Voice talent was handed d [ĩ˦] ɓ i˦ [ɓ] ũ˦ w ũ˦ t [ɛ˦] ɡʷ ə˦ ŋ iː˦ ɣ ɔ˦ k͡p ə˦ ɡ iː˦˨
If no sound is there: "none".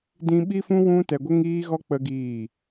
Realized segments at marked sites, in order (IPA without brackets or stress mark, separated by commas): ĩ˦, f, ɛ˧